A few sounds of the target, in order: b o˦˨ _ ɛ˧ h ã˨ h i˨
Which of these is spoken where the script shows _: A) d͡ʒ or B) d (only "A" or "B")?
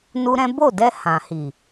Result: B